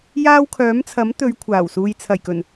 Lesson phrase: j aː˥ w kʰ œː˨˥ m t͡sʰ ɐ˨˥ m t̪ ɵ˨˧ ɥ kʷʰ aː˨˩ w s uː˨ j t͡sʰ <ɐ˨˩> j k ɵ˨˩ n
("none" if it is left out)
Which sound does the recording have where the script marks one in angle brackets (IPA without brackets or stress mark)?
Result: ɐ˨˩